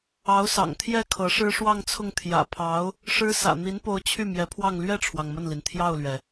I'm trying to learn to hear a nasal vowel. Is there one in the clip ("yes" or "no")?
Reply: no